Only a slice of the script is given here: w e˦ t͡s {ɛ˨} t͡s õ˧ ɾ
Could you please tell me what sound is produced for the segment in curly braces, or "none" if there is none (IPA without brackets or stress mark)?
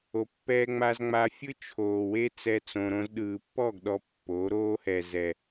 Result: ɛ˦